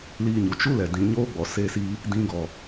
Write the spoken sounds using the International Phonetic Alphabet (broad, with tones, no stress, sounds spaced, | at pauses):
l iː˧ ɲ u˨ t͡ʃ u˦ l ɛ˨ d ĩ˨ ɲ oː˦ ɡ͡b ɔ˨ s e˦˨ s iː˧ | d ĩ˧ ɡ ɔ˨